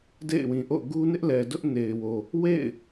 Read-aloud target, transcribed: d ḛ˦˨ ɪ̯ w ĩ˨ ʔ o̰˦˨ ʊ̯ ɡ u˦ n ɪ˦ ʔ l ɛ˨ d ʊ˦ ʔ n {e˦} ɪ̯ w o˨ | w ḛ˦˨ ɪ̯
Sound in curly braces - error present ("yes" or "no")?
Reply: yes